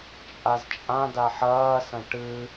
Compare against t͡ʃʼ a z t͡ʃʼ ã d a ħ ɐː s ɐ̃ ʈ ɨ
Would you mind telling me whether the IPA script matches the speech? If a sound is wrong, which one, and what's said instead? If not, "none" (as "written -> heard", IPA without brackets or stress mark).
none